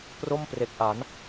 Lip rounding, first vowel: rounded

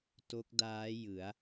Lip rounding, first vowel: rounded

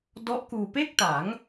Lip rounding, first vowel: rounded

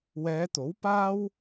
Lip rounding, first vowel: unrounded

